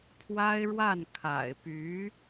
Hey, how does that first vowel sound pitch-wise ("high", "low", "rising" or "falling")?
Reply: high